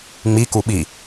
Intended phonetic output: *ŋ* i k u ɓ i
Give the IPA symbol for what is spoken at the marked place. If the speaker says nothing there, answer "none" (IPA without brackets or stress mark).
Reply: ŋ͡m